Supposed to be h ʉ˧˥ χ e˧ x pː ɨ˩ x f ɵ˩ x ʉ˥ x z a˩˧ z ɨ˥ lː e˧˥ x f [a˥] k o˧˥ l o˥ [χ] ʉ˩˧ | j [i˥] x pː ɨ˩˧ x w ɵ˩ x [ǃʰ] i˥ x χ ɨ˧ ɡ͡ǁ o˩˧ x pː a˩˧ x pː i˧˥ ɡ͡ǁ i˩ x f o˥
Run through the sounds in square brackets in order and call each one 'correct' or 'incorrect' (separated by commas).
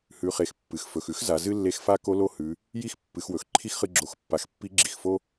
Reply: correct, incorrect, correct, correct